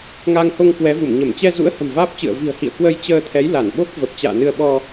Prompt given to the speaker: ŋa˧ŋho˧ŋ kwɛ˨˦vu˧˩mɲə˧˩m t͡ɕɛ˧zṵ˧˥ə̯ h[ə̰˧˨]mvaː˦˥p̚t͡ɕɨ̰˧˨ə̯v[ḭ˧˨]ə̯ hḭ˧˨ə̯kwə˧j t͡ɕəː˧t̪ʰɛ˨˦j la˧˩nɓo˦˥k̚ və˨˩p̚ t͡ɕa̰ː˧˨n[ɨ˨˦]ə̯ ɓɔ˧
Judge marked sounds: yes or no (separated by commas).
no, no, no